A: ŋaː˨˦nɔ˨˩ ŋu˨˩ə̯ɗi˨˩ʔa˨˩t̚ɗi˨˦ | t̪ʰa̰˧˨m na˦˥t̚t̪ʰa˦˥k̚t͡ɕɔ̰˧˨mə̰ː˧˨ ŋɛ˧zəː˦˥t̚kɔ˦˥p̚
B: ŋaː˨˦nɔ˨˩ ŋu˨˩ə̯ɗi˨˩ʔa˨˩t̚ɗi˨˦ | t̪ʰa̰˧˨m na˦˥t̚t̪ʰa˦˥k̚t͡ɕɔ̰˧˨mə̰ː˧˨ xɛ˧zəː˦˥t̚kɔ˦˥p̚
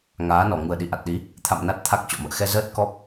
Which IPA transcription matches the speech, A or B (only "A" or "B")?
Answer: B